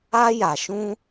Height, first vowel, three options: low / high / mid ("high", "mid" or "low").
low